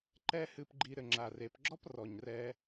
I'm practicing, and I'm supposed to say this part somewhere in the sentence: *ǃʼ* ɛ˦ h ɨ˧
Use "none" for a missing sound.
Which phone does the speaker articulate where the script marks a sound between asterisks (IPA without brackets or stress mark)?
ǃ